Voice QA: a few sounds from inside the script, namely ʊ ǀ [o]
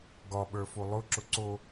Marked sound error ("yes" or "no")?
no